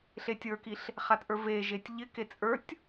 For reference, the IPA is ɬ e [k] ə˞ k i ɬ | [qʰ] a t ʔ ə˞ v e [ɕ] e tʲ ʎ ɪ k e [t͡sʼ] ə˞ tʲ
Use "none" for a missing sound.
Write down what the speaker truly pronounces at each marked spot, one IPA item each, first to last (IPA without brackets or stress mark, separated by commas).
tʲ, χ, ʒ, t͡sʼ